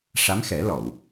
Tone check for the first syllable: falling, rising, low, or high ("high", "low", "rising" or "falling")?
rising